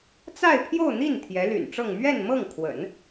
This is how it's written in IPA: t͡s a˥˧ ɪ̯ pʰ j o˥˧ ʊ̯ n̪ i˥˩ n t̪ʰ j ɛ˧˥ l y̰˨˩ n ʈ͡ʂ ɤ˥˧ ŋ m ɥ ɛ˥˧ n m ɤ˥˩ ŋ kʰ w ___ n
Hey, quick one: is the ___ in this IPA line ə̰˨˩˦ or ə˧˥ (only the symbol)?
ə̰˨˩˦